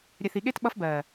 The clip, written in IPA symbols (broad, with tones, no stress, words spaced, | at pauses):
ɾʲɛ˨θi˨ɠe˦t ɓʌ˦fbɜː˨